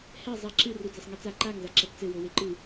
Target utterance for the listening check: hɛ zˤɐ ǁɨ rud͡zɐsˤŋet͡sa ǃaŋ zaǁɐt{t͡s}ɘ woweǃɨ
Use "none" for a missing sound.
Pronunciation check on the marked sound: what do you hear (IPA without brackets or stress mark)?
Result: t͡s